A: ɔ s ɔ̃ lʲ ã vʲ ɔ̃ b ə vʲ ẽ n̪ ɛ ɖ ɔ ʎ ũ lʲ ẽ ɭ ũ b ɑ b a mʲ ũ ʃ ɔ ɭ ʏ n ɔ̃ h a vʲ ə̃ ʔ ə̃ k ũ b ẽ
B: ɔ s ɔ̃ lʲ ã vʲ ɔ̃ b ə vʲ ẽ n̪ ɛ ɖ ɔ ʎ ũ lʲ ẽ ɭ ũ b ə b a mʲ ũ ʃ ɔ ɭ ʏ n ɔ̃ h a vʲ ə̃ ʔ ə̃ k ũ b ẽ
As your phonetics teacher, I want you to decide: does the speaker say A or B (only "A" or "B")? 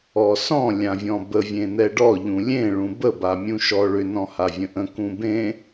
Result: B